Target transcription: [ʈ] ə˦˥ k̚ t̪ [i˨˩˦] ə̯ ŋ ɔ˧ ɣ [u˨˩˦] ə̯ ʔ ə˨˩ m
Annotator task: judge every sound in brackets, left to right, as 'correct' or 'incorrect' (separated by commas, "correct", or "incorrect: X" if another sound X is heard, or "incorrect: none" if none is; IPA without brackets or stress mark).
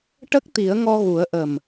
correct, correct, correct